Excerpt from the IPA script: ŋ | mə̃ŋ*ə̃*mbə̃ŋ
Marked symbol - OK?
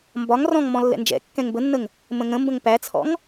yes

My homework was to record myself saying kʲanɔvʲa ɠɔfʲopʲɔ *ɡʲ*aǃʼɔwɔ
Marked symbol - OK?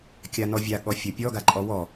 no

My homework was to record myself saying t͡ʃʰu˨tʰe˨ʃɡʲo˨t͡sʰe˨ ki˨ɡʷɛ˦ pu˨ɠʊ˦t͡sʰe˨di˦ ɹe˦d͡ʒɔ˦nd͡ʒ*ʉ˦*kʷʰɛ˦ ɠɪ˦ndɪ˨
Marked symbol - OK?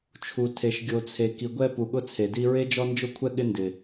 no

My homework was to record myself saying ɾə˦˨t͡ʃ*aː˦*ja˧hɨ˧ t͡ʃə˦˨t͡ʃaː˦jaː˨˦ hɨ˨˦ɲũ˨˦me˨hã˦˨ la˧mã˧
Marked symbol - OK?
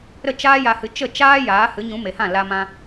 yes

